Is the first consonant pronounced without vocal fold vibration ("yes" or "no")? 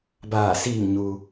no